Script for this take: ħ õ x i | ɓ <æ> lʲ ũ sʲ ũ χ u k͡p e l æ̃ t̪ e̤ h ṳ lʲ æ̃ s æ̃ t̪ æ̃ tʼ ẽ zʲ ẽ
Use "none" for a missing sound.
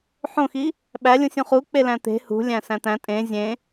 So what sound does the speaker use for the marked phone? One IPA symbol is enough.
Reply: æ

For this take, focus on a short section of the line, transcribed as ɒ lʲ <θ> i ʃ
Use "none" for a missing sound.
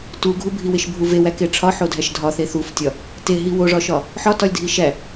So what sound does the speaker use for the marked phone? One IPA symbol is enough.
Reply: dʱ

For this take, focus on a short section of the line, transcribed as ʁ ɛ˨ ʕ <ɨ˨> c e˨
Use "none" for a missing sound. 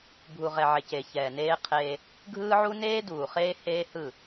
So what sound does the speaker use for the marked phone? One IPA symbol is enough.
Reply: e˨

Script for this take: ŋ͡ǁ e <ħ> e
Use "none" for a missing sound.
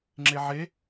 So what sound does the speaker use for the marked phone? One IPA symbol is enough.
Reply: ʕ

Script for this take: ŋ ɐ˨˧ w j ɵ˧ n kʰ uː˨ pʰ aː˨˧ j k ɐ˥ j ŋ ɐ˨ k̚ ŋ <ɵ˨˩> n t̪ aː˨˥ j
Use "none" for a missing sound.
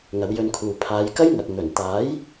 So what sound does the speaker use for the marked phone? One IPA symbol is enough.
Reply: ɵ˨˩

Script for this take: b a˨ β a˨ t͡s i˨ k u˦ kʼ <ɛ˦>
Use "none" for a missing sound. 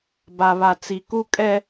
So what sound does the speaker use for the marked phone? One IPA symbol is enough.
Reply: ɛ˦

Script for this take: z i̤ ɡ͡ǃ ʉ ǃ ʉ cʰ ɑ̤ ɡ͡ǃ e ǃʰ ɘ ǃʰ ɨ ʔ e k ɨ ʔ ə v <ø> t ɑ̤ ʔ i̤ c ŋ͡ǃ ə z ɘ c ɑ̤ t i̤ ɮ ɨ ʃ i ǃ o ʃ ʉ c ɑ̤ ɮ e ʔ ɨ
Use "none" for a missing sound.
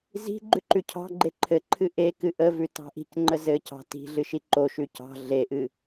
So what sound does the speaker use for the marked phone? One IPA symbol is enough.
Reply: ʉ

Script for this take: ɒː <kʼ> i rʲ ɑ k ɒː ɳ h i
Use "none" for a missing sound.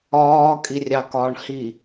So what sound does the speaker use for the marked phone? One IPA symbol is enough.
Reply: kʼ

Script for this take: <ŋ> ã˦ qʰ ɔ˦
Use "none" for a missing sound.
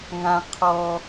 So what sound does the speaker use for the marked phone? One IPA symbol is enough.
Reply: ŋ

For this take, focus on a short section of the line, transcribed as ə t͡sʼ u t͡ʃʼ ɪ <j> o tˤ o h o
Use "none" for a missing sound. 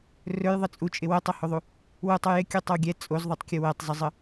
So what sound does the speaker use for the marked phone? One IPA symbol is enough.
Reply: w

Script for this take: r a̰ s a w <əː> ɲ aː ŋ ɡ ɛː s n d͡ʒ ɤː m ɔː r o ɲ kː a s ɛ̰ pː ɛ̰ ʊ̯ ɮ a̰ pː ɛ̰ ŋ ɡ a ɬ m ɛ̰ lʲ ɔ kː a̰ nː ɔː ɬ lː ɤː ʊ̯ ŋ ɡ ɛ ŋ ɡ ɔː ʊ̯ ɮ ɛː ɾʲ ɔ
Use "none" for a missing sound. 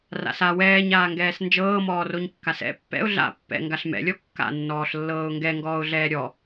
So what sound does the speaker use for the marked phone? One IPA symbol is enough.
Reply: ɛː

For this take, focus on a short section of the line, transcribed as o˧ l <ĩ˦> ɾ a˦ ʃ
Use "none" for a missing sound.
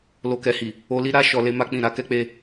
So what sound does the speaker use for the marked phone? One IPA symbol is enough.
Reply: i˦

